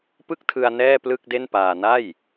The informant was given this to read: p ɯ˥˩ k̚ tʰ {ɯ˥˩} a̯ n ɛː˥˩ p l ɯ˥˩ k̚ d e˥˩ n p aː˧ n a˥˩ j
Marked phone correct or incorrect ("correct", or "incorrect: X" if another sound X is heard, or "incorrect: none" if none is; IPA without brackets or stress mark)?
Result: incorrect: ɯ˧